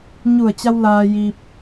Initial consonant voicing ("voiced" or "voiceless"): voiced